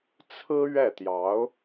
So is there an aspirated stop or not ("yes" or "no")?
yes